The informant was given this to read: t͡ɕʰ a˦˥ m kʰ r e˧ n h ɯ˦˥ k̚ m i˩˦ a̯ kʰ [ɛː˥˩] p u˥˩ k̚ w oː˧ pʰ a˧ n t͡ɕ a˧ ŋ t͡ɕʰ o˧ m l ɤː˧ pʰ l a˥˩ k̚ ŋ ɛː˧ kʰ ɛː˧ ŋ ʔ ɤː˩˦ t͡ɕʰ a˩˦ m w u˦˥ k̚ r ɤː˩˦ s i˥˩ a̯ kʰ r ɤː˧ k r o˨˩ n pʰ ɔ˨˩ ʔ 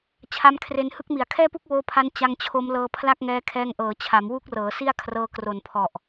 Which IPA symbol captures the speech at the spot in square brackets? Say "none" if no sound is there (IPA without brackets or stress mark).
ɛː˥˩